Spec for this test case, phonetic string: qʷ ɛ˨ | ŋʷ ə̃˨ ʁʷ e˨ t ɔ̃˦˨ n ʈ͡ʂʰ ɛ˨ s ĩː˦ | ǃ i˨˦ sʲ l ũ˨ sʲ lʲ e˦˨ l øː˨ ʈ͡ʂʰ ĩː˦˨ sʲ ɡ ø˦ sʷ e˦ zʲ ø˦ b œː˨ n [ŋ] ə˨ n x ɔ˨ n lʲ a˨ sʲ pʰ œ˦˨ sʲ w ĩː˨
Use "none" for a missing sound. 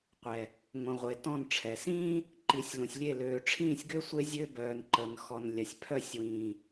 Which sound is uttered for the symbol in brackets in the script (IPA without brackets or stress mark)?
ǃ